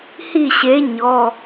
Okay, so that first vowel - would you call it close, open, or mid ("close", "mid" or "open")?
close